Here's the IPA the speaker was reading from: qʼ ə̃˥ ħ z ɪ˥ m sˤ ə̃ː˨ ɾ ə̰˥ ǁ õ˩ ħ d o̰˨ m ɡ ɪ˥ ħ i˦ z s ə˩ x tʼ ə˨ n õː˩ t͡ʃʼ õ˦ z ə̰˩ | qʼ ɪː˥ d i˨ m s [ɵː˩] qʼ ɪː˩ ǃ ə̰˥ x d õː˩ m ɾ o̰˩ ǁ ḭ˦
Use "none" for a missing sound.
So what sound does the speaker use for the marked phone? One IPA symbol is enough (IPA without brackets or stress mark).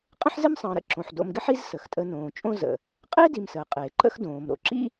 əː˩